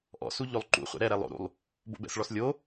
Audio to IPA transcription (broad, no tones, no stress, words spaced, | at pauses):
ʔɔ̰su ʎolˠǃṵχʷɛ̰ ɾɛɾɛ lˠo̰ɾṵlˠ | bo̰bɛ̰sɭɔs lʲo